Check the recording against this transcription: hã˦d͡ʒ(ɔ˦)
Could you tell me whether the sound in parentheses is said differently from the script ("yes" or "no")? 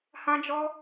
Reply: no